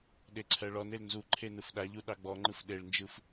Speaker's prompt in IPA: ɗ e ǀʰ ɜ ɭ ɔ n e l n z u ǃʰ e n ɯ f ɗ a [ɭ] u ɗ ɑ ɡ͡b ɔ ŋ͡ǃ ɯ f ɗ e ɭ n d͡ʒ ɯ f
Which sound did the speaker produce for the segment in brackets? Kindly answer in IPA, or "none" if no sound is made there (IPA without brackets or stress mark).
ʎ